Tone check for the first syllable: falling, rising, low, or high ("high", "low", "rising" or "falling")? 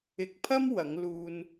low